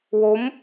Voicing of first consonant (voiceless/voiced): voiced